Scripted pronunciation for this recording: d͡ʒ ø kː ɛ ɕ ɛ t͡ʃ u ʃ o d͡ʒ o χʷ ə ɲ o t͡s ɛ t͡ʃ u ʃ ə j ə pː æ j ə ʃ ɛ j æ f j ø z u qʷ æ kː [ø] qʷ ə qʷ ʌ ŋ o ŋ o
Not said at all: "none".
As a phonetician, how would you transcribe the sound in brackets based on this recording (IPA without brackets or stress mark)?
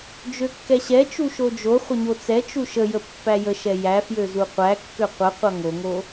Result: ø